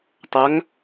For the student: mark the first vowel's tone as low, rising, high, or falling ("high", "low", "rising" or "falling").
rising